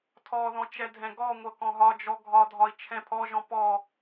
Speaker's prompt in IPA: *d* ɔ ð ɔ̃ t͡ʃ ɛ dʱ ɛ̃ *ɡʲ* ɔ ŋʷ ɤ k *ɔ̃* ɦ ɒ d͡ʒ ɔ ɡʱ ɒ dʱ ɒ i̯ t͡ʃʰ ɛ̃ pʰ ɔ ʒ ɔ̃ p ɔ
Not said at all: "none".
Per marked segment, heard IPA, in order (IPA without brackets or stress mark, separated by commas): tʰ, ɡ, ɔ̃